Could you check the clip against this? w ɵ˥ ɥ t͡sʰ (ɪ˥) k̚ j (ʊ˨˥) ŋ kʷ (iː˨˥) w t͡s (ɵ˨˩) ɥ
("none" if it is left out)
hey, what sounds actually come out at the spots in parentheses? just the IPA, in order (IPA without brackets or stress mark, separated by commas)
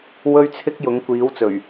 ɪ˥, ʊ˨˥, iː˨˥, ɵ˨˩